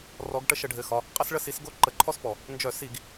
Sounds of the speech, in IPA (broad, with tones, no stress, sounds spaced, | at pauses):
r ɔ˨˦ ɡ ʈ ə˦ ʃ ə˧˩˧ ɖʱ ɘ˩˧˩ x ɒ˩˧˩ | qʼ ə˦ s ɭ ə˦˨ s i˨˦ s ɡ o˦ ǃ ə˧˩˧ ǃʰ ɔ˦ s p ɔ˩ | n d͡ʒ œ˧˩˧ s i˧˩˧ ɡ